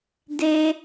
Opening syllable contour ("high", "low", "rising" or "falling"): high